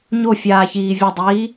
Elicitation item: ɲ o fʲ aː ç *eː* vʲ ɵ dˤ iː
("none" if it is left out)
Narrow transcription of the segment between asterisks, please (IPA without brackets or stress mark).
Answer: iː